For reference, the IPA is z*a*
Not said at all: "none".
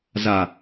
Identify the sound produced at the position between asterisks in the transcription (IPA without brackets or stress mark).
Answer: a